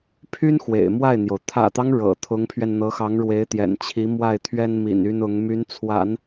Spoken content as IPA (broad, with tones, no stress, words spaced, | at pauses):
pʰy˥n xwḛ˨˩ɪ̯mwa˥˩ɪ̯n̪jo˩ʊ̯ t̪ʰä̰˨˩t̪ɑ˦ŋ ɻɤ̰˨˩ t̪ʰʊ˧˥ŋpʰɥɛ˧nn̪ɤ˧˥xɑ˧˥ŋ ɻwe˧˥ɪ̯t̪jɛ̰˨˩nt͡ɕʰi˧˥ mwa˥˩ɪ̯t̪ʰɥɛ˥nmḭ˨˩n y˥nʊ˧˥ŋ my˧˥nt͡sʰwa̰˨˩˦n